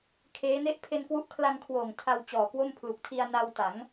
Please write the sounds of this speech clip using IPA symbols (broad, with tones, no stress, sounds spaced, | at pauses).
kʰ eː˦˥ n e˥˩ ʔ pʰ e˧ n k w u˦˥ ʔ kʰ l a˧ ŋ kʰ w oː˨˩ ŋ tʰ a˧ w t͡ɕ ɔː˨˩ k w o˥˩ m pʰ l u˨˩ k̚ tʰ i˧ a̯ n a˧ w t a˩˦ ŋ